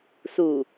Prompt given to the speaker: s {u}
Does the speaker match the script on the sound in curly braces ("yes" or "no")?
yes